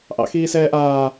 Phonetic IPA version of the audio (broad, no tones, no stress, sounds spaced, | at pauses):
ʔ ɑ̰ x iː s ɛː ʔ aː